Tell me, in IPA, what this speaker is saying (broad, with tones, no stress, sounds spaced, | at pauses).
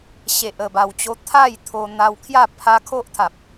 ɕ e˨ ʔ ə˨˩ b a˨˩ w t͡ɕ o˧ t̪ʰ a˥˧ j t̪ʰ o˧ n̪ a˧ w kʰ j a˥˧ pʰ a˧ kʰ o˦ ʔ t̪ʰ a˨ p̚